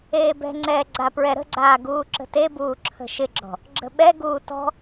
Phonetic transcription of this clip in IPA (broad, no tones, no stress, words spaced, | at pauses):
eːbɛ̤ŋ͡ǀɛː ɡ͡ǀapɹɛɾə̤ɡ͡ǀaː ɡuːǁə̤tebuː ǁʰə̤ʃɪɡ͡ǁɔ̤ | ɡ͡ǁə̤ɓɛɡuː tɔ̤